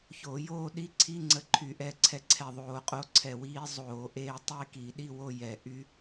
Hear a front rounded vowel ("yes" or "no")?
yes